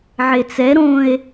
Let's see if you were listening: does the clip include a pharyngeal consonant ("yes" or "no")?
yes